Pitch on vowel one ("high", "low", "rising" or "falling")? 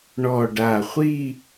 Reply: low